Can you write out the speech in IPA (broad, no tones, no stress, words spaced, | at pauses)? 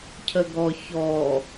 cʰəɡɔ çɔ